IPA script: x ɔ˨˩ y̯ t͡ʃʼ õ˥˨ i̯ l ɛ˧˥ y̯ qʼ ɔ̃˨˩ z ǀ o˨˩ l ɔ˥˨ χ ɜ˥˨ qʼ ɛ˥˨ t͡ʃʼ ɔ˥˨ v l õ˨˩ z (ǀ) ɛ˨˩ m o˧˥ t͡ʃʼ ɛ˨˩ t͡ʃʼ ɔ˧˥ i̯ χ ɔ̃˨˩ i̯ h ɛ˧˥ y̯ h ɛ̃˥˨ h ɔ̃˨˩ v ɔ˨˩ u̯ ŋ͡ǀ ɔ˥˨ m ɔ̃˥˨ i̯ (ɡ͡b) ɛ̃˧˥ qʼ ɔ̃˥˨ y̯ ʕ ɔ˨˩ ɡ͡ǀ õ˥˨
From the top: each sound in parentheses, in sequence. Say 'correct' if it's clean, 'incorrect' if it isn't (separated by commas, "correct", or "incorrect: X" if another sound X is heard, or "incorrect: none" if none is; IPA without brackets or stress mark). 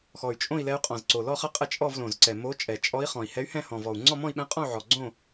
correct, incorrect: ɓ